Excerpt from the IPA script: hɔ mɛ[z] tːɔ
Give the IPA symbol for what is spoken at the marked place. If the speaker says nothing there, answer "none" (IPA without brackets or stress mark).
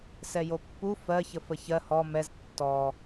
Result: z